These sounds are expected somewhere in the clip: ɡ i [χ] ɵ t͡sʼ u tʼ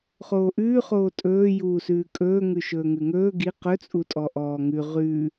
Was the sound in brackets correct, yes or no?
no